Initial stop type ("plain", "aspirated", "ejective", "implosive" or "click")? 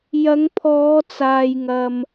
aspirated